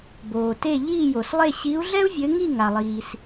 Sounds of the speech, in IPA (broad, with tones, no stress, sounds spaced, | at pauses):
b oː˩ t e˥˨ ʎ iː˥˨ j o˩ s lˠ e˥˨ ɕ i˨˦ u̯ ɮ ɛ˥ u̯ vʲ ɘ˨˦ ŋ i˥˨ ŋ a˩ lˠ iː˩ s